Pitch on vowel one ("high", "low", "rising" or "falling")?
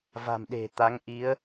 low